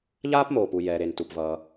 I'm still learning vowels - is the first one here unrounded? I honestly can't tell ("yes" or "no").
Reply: yes